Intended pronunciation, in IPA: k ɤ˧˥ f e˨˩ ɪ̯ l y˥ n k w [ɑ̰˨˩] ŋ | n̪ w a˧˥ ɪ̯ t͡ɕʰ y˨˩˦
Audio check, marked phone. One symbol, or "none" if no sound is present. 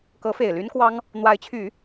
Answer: ɑ˥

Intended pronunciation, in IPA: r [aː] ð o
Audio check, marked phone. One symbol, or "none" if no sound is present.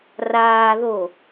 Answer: aː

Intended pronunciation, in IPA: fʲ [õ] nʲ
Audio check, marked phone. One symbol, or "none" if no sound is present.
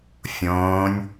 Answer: õː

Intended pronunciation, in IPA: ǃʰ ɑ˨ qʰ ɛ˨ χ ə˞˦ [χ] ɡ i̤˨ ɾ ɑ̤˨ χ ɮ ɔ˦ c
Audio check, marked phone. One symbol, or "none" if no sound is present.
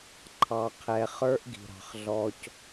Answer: ʔ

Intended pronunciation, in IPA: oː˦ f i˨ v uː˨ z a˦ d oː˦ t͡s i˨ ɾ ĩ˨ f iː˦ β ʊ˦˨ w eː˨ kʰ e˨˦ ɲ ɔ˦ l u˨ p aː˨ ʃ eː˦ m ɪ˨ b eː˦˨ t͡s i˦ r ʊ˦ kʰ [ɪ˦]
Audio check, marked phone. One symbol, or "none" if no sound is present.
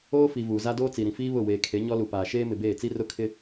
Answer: ɪ˦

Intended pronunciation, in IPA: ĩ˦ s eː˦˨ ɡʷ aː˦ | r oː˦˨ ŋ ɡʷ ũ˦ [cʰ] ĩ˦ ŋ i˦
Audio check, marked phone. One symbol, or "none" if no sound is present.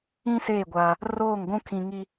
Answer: kʰ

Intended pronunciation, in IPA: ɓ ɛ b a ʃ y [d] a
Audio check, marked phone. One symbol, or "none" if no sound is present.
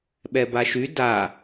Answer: d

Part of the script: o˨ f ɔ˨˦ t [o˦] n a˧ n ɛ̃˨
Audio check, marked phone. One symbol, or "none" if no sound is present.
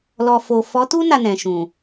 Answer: u˦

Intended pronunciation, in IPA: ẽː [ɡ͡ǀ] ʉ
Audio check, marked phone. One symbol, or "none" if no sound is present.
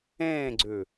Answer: ɡ͡ǀ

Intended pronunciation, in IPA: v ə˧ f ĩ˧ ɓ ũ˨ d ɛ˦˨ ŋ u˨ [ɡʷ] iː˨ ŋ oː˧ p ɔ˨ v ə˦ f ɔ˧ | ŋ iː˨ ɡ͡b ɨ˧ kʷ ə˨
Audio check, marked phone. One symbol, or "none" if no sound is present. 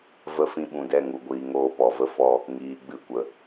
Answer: ɡʷ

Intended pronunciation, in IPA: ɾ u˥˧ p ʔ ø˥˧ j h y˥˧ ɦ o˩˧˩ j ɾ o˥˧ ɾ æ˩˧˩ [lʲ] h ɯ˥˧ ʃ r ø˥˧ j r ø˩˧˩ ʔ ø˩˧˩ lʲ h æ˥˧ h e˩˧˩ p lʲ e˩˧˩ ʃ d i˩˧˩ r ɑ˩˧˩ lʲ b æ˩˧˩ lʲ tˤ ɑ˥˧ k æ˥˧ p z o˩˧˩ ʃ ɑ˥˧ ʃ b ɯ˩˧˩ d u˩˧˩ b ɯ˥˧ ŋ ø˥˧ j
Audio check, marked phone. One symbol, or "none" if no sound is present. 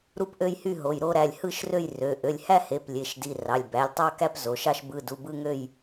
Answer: lʲ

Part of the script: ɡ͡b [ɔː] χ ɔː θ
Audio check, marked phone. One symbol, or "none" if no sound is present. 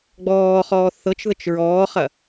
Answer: ɔː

